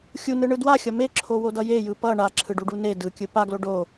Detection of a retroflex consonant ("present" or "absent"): present